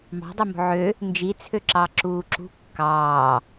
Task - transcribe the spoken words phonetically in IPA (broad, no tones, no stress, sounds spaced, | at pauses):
m ɑ̤ dˤ ø m o̤ ʕ ø | n d͡ʒ i t͡sʰ ø ǁ ɑ ǁ uː ǁ ṳ kː ɑː